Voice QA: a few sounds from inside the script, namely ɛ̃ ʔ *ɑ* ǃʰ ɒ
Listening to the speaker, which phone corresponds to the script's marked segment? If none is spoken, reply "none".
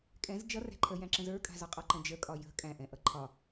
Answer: ʌ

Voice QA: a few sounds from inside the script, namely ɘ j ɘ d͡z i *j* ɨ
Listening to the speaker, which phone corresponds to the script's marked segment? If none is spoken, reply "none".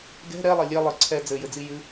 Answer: j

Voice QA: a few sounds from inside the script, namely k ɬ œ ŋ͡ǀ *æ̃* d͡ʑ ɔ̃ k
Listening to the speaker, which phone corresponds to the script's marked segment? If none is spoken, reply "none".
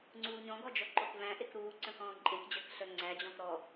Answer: æ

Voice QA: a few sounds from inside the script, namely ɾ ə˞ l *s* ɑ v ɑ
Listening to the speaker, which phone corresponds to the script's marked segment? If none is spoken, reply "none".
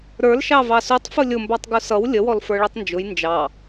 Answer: ʃ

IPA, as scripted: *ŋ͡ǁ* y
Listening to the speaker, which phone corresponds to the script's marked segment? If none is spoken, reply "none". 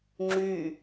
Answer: ŋ͡ǁ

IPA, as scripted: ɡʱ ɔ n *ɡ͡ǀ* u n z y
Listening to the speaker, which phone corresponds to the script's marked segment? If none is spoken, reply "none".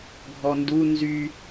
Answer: d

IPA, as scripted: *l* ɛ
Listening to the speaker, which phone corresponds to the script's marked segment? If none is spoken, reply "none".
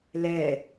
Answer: l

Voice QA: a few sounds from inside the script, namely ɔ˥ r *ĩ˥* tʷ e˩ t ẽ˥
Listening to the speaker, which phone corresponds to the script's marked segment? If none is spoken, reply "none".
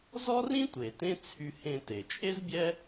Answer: ĩ˥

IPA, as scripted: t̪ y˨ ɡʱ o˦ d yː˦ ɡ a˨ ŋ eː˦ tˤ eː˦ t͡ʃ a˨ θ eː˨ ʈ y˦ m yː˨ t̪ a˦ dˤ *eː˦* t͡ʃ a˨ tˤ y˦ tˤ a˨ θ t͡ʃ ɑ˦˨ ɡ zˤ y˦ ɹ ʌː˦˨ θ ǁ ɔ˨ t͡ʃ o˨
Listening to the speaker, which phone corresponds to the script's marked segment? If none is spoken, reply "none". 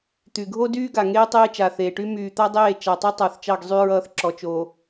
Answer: eː˦˨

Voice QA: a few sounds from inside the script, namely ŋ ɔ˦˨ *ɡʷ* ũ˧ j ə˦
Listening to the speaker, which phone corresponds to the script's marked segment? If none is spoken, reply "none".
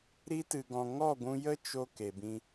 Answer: ɡʷ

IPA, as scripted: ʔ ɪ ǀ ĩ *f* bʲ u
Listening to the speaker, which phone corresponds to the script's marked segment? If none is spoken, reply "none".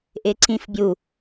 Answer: f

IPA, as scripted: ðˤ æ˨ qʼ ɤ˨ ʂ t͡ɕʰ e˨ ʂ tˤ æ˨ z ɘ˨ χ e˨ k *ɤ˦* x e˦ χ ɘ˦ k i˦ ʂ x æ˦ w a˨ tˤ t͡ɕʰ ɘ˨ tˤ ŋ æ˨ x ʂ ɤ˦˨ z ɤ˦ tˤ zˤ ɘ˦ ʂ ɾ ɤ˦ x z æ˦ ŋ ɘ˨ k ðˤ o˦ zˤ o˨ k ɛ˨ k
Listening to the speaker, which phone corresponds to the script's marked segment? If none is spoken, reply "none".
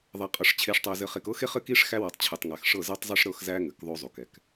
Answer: ɤ˦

